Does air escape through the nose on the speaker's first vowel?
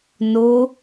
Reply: no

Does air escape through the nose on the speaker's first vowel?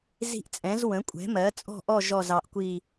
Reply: no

